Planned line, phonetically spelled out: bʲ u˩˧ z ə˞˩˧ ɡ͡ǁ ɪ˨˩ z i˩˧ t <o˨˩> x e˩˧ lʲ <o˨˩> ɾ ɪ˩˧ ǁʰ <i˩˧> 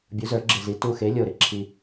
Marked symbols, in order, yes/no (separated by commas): no, yes, no